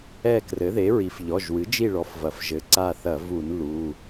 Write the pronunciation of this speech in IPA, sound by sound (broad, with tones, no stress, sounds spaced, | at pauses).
ɛ˦˨ k r ɘ˩˥ ð e˩˥ ɹ i˩˥ f ʎ ɔ˩˧˩ ʒ w ɨ˩˥ d͡ʒ i˦˨ ɭ ɔ˩˥ f v ɐ˩ f ʒ ɘ˩˥ ǀ a˦˨ θ ɐ˧˩˧ v u˧˩˧ n l u˩˧˩